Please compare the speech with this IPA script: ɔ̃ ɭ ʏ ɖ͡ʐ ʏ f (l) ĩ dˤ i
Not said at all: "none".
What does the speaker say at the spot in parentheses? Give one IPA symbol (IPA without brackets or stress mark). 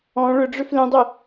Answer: l